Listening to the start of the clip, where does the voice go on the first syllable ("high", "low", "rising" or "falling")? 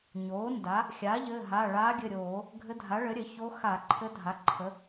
rising